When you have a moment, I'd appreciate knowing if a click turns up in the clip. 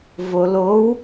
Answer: no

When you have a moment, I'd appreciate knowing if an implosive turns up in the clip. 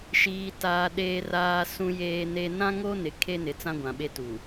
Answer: yes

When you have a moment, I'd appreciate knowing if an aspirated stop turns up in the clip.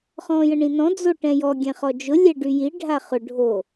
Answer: no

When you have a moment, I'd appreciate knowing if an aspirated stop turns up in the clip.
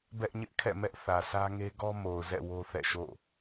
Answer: yes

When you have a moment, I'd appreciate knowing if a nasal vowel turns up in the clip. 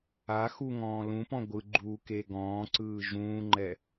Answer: yes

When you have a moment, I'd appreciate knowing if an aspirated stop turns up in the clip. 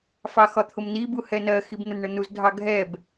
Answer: yes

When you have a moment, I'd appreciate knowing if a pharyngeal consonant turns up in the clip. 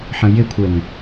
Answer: yes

